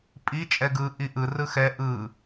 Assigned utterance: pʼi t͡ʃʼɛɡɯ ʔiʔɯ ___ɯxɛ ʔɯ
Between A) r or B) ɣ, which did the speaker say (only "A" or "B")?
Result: A